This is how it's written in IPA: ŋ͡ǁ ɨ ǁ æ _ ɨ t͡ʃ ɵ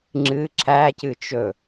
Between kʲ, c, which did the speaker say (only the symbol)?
c